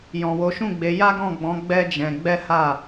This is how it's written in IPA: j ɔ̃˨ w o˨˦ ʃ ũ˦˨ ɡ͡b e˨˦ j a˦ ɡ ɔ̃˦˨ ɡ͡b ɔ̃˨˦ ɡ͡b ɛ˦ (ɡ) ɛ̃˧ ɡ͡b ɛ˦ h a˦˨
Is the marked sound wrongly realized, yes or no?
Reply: yes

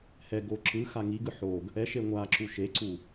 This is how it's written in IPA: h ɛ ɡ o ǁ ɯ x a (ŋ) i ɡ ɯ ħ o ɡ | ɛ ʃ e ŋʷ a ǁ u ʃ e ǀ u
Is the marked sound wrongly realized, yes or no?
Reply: no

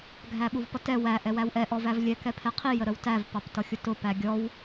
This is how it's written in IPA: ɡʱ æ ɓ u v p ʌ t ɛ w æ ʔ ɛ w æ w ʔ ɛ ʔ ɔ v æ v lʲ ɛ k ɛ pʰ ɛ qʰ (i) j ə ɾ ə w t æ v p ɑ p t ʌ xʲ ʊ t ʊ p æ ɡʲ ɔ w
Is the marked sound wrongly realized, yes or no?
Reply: no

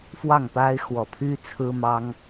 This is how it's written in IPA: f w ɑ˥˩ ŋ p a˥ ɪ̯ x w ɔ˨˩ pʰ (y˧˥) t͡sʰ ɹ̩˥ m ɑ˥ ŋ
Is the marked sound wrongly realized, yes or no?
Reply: yes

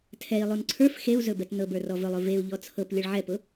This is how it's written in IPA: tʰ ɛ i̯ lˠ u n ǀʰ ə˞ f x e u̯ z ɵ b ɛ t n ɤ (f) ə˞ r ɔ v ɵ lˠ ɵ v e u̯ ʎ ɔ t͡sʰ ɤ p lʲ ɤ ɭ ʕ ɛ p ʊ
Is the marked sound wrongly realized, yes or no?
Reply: yes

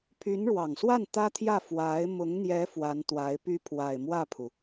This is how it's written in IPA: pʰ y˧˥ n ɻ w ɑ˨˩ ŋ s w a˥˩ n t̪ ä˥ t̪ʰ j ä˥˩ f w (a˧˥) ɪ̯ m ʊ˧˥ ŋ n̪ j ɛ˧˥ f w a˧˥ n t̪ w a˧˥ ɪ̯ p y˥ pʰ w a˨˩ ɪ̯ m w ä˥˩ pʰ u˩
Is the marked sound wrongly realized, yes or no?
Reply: no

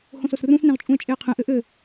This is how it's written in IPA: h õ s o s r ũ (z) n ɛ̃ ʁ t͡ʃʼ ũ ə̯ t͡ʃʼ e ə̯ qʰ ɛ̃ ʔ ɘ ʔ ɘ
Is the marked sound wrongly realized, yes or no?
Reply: yes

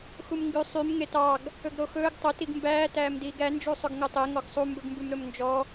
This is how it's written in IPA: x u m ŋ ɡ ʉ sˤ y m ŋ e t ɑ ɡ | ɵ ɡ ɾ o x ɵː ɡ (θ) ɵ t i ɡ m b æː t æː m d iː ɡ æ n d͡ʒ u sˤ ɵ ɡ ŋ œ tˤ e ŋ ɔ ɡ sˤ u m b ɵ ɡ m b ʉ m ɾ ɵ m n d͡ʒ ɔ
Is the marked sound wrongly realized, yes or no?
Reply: yes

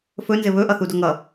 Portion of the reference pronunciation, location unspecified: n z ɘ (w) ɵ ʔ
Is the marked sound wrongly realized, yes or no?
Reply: yes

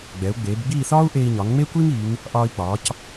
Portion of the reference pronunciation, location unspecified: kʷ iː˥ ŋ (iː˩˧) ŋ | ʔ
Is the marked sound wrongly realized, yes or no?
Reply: no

